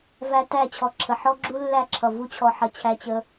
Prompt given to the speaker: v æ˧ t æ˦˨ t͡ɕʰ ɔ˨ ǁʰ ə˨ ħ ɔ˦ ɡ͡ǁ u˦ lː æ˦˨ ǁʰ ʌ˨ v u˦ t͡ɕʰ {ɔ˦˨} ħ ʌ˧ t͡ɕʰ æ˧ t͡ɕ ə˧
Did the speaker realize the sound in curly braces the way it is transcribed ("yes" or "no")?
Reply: no